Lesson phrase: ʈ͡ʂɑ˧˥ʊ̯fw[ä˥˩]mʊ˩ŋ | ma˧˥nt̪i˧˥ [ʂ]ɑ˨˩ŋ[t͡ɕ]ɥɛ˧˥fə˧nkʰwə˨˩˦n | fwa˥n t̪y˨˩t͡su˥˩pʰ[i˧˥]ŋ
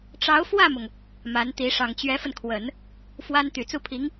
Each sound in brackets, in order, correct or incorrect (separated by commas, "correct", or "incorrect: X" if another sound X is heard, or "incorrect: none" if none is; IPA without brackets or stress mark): correct, correct, correct, correct